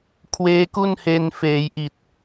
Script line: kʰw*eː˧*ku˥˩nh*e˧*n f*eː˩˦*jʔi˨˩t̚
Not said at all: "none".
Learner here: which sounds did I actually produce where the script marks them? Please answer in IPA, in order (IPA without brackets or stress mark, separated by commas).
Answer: eː˦˥, e˧, eː˩˦